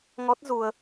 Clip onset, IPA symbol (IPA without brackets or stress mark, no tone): ŋ